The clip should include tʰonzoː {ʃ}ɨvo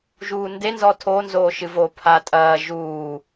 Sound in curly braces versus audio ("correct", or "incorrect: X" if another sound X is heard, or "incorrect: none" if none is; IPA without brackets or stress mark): correct